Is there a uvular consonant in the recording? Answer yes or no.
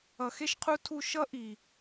yes